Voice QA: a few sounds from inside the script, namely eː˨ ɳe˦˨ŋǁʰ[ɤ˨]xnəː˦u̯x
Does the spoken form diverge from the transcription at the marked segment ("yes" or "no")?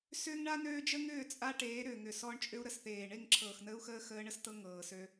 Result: yes